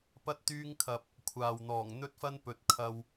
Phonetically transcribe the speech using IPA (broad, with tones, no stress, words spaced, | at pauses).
pɐ˥t̚t̪yː˥ŋkʰɐ˧p̚ | kʷʰaː˨wn̪ɔː˨˩ŋn̪ɵ˥t̚fɐ˥n pɵ˨t̚kʰɐ˧w